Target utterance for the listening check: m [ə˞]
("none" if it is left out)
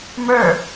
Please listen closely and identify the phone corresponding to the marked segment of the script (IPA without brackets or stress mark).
ə˞